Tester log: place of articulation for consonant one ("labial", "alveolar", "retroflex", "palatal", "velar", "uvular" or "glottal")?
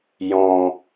palatal